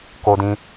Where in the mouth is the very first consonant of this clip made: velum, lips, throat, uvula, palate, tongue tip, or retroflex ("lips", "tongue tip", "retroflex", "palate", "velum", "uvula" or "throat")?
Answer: velum